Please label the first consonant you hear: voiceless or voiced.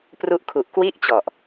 voiceless